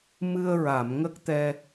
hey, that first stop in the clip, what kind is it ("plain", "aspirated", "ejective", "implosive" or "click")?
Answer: plain